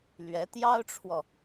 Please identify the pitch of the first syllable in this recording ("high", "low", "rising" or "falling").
rising